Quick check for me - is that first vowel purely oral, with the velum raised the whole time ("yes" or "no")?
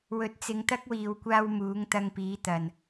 yes